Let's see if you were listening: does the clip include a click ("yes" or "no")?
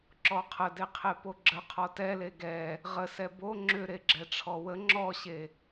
yes